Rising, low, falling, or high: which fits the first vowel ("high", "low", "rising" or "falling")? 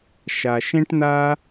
low